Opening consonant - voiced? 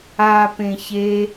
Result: no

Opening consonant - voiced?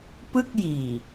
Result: no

